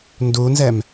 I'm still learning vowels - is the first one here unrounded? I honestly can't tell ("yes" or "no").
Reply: no